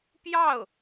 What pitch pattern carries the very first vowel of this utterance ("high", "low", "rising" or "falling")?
falling